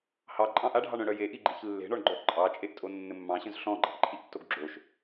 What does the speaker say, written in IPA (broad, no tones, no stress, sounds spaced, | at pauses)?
h ɑ ǃʼ ɑ̃ ʔ a ɖʱ ɑ ɳ œ̃ ɽ œ j e ʔ i ɡ͡ǃ i ç lː e̤ ɳ ɔ ɳ ɡ͡ǃ œ ʔ ǃʼ ɑ t͡ʃʼ e ʔ tʼ o nː ɘ mː ɑ̃ ɕ œ̃ z ɬ ɔ̃ ɡ͡ǃ ɑ̤ ʔ ǃʰ i ʔ tː o ɡ ɡ͡ǁ o ʃ